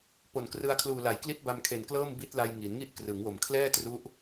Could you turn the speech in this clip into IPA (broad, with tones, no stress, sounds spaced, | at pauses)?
p o˨˩ n k r ɯ˧ a̯ kʰ l uː˨˩ l a˩˦ j k l i˦˥ t̚ b a˧ m kʰ e˨˩ n k l ɤː˥˩ m b i˦˥ t̚ l a˧ j ŋ i˩˦ n ŋ i˥˩ ʔ k r ɯ˩˦ ŋ w o˨˩ m kʰ l ɛː˥˩ t r u˦˥ ʔ